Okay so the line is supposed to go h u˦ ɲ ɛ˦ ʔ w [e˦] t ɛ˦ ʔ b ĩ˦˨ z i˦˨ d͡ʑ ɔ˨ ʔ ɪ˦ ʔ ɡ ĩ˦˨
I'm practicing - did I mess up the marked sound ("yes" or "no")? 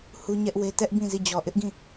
no